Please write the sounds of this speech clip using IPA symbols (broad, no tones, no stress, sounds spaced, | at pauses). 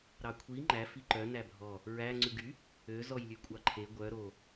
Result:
ɾ ɑ kʷʰ i ŋ͡ǃ æ f i ǃ œ n æ bʱ ɔ | ɹ æ ŋ͡ǀ ʉ ɡ y | ø z ɔ j lʲ ʉ kʷʼ ɑ ǃʰ e ɡʷ œ ɾ o